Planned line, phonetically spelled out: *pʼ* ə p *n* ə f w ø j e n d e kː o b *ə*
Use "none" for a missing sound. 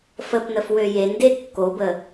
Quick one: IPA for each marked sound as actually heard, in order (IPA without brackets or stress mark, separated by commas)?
f, n, ə